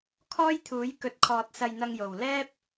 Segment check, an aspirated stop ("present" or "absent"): present